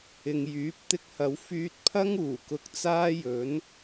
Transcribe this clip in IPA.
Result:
ɪ˨ ŋ j yː˨˥ p̚ t̪ ɪ˧ k̚ h ɐ˨˧ w f yː˧ t̚ pʰ ɐ˥ ŋ uː˨˩ k ʊ˧ k̚ t͡s aː˥ j ɵ˨˥ n

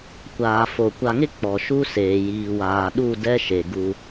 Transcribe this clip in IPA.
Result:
kʷ aː˨ f o˨ kʷ a˨ ŋ ɪ˦ k͡p ɔ˨ ʃ u˦ s eː˨ j iː˨ w aː˨ ɗ u˦˨ d ɛ˦ ʃ e˨ ɡ u˦

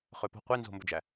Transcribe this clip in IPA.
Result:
χ ø p o̤ qʷ e n z o̤ m b ɵ d͡ʒ æ

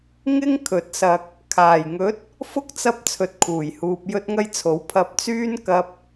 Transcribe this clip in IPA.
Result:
ŋ ɪ˥ ŋ kʰ ɵ˨˥ t̚ s ɐ˧ k̚ | kʰ aː˨˩ j ŋ ɵ˨˥ t̚ | f ʊ˥ k̚ t͡s ɐ˧ p̚ t͡sʰ ɵ˨ t̚ kʰ uː˨˩ j h uː˨ p̚ j ɵ˥ t̚ ŋ ɐ˥ j t͡sʰ o˨˥ w pʰ ɐ˧ p̚ t͡s yː˥ n k ɐ˥ p̚

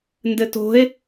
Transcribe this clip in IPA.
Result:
n d ɘ t o̤ e̯

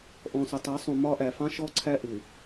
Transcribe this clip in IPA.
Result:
ʔ ɔ̃˨ s ʊ˨ tˤ ɜ˨˦ sˤ ũ˨ m ɒ˦ ʔ æ˨ f ɑ̃˦ ʃ ɔ˦ ǀʰ æ˦ ʔ ɪ˨

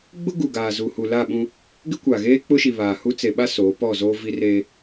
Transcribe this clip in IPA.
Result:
ɡ͡b ʊ˦ ɡ u˨ ɡ aː˨ z u˨ h u˨ l a˦˨ ɓ ũ˦ | ɡ ɪ˦ kʷ a˨ ɣ eː˦ k͡p ʊ˦ ʃ i˨ β aː˨ h u˦ t͡s e˨ ɓ a˦ s oː˨˦ p ɔ˦˨ z oː˦ v i˦ r eː˦

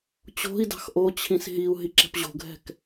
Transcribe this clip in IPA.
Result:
t͡ɕ o̤ i̯ d ɑ̤ x ʔ o t͡ɕʰ ĩ s ɦ i u̯ ɦ i ǁ ɛ̤ p ʑ o̤ ɡʱ ɛ̤ k

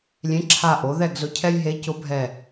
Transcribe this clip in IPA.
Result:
lʲ ẽ˨˥ ǁʰ a˧˩ ʔ o˨˥ ð ɛ˥˨ ɡ z ʊ˨˥ cʰ ɛ˦ j ɦ e˨˥ c ʊ˨˥ bʱ ɛ˧˩

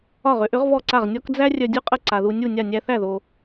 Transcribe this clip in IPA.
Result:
ɒ˥˩ ʁ ʏ˩˥ ʔ ʏ˩˥ ʁ v ɔ˥˩ ǀ a˥˩ ʁ nʲ ɔ˥ k d͡z æ˥ rʲ œ˧ dʲ u˥ qʼ ə˥˩ ǀ a˩ ð u˧ nʲ u˥˩ nʲ a˥˩ nʲ æ˧ θ æ˥˩ ð o˩

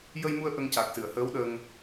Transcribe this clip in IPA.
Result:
j ə˧ j m u˧ ə̯ ʔ ə˧ ŋ c a˨˩ k̚ s ɨ˨˩˨ ə̯ h əː˧˥ w ɗ ə˧ ŋ

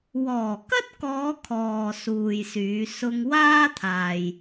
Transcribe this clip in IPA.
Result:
w ɔː˨˩ k ɐ˥ t̚ k ɔː˨˧ kʰ ɔː˨ s uː˨ j s yː˨˧ s ʊ˧ ŋ w aː˥ t̪ʰ aː˨ j

